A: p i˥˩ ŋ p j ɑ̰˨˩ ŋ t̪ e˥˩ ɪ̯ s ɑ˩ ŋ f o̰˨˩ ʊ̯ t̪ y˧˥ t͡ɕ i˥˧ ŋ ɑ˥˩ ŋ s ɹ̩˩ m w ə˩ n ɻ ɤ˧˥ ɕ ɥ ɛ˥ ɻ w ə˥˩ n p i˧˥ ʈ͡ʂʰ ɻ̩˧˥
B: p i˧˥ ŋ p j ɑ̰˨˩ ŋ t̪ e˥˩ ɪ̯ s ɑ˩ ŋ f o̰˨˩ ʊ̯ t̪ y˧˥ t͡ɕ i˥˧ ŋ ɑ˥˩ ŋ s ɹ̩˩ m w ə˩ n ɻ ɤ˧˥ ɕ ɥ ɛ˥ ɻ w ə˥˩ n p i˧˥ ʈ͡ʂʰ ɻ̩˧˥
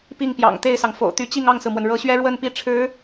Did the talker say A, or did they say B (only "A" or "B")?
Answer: A